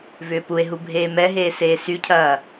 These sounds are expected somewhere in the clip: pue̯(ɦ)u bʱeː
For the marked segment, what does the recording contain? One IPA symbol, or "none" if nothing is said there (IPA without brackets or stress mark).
ɦ